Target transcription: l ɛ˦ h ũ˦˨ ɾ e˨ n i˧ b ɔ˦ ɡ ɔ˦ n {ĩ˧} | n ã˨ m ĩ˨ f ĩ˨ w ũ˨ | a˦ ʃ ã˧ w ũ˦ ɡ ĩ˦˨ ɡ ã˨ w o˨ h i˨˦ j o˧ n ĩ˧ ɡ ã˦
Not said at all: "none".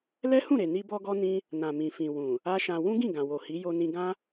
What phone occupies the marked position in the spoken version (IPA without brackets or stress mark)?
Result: ĩ˦